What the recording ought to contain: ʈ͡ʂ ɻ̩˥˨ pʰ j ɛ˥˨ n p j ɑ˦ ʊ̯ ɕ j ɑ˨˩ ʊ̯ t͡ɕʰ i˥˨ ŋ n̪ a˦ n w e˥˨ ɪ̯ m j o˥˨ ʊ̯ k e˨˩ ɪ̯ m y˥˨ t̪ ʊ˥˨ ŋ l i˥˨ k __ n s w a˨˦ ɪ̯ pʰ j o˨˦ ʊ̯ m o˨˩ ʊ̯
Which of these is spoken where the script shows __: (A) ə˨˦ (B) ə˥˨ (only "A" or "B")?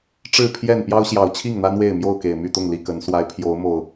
A